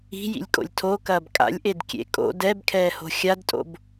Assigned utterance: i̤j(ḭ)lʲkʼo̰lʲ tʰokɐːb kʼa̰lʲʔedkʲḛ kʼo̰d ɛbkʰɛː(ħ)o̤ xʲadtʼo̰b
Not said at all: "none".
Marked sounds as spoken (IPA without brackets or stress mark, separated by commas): ḭ, h